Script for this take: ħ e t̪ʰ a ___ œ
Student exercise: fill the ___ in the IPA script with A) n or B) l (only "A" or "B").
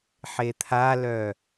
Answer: B